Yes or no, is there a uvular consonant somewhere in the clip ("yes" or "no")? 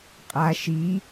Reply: yes